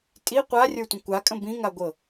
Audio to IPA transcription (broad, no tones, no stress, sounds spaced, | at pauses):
tʼ i qʷ a rʲ ə˞ tʷ ə̃ kʷ a kʼ ə̃ b ĩ ŋ a ɡʷ ɤ